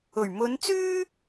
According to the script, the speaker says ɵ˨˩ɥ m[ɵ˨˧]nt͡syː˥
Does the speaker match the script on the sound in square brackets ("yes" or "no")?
yes